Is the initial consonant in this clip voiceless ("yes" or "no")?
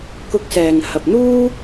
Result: yes